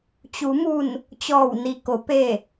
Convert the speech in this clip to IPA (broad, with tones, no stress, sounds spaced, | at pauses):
t͡ɕ u˩˧ m u˧˩ n | t͡ɕ ɔː˧˩ w n i˩ k o˩˧ p e˧˩